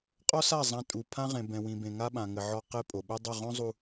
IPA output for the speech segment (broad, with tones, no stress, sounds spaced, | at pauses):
qʼ ɔ˦ s a˦˨ zˤ ã˦ tʼ u˨ pʰ ã˦ ʁ ẽ˨ b ɛ̃˨ w ĩ˨ b ẽ˨ ŋ a˦ ɓ ã˨ ŋ ɘ˨ ʕ ɔ˦ q e˦ pʼ o˨ ɓ ɛ˦ dˤ ɘ˦˨ ʁ õ˦ zˤ u˨